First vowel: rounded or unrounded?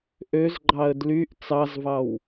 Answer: rounded